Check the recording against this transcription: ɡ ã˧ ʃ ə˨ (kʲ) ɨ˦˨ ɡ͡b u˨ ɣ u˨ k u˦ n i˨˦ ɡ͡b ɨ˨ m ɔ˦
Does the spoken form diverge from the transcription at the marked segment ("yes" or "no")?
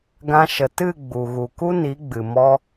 yes